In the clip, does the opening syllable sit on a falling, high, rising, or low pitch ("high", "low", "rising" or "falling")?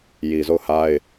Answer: low